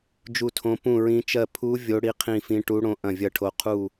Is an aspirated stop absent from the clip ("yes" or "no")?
no